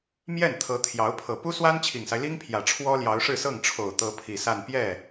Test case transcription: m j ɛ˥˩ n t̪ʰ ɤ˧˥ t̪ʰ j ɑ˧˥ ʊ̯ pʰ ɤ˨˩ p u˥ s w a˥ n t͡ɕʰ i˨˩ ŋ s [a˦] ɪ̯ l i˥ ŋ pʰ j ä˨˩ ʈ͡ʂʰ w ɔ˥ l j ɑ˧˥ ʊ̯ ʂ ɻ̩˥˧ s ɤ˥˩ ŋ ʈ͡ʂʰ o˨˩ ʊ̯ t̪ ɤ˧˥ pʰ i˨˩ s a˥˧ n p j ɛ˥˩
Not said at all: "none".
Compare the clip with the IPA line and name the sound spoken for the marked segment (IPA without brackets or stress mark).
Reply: a˦